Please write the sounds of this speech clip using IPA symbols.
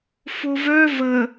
f o v œ v ə

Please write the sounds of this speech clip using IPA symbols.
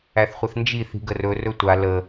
æ θ χʷ ɪ θ n d͡ʒ i θ i̤ ɡ ə r ɵ r ɵ tʷ a l ə

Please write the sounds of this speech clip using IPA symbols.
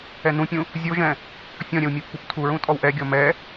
ɛ n ũ pʲ ũ | zʲ o ʒ ɛ̃ | fʲ ɔ̃ ɾʲ ɛ w mʲ ɛ pː u p tʰ u ɹ ũ tʼ ɔ w ʔ ɛ ɡʲ ɔ m ɛ

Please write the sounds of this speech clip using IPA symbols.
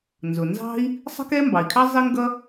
n z ʊ˩ n z ɑ̤˥ i̯ | sˤ ə̤˥ k ɛ˥ m b ɑ˩ i̯ kʰ ɑ˥ zˤ ɪ˥ ŋ ɡ ʌ˥

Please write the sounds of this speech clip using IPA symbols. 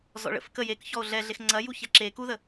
z ɔ̰ ɭ ə̰ f k ə j e k ç ɔ o̯ ɮ ɛ ɮ e x ŋ͡ǀ ɐ j u ç ɛ ǁ e k u ð ə

